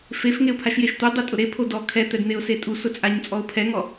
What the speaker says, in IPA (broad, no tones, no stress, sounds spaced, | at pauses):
f e f ŋ e ʊ̯ pʰ a ʃ j e ʃ t̪ u dˤ ɪ tʼ ʊ ɾ e pʰ o d ɔ kʰ ɛ t̪ ɛ d n̪ e ʊ̯ s e tʼ u s ʊ t͡sʼ a ɲ t͡sʼ ɔ ʊ̯ pʰ ɛ ŋ ɔ